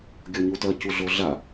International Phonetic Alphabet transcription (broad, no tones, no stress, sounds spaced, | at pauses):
ɡʲ ɔ ɲ u t ɐ c u ɮ o ɮ a